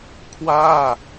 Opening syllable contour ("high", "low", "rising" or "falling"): falling